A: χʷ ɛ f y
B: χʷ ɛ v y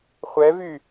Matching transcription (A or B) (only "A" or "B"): B